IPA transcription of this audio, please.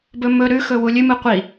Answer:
bɵmɵ ɾʉxɵwu lʲʉmɨ qʷi

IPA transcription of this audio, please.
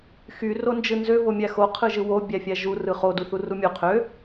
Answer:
xy rond͡ʒɯnzø vomʲæxo qʰɯʒɯwo bʲæfʲæʒu rɯχo duθurumʲo qʰø

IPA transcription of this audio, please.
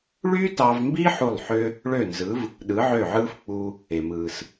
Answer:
ɭy˥tɑ˧vmbi˥ ħu˥˩lˠħø˥ | ɭø˥˩nzɯ˩˥v | ɗɯ˩˥ʕø˥˩ʕɯː˥f k͡pu˧ | e˩mɯː˩s

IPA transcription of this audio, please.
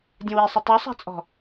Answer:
dʲə̃wisˤə tˤusˤa̤t͡sʼɔ̤

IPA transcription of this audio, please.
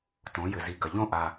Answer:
tõ˩˧ jɘ˩zi˩ɡɐ˩ ʎõ˦ʔa˩

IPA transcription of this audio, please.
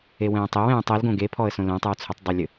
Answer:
ewɛ̃ːtˤewɛ̃ːtˤ elɡõ ɡepʰɔə̯sõ lɛ̃tˤɨw t͡sʰɘtˤdˤɛlʲɘ

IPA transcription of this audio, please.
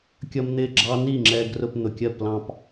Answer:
kʲʌ˦mn̪ɪ˦˨ ɡ͡ǁɑ˦ni˦˨ŋ͡ǁɛ˧ ɡrʊ˧pn̪ʊ˨kʲɜ˦˨plɑ̃˧p

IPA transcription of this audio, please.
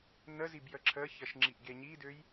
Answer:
nəzib jəǁʰəçəʃ ŋ͡ǁiʔɡeɲidøj

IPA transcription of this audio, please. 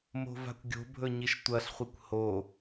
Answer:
mo̤va̤kʷɡʲo̤bʱɵ ɲiʃtʷɐɬχʷikʷ ho

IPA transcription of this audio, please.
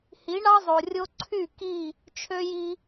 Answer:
hi˨˦ɳɑ˦zˤo˨ rʲo˧ǀʰy˦˨ ki˦˨ | t͡ʃʰø˧ ji˧

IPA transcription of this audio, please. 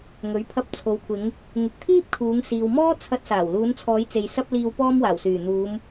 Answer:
ŋɵ˨˥ɥpʰɐ˧p̚ t͡sʰo˨wkʷʰɪ˨˧ŋ | ŋɪ˨k̚t̪ʰiː˥p̚kʰuː˨˧ŋ siː˨wmɔː˥ t͡sʰɐ˧t̚saː˨˩w luː˨˧nt͡sʰɔː˨˧jt͡se˨j sɐ˧p̚liː˨wpɔː˧m waː˨˩wsyː˨˩n̪uː˨˧m

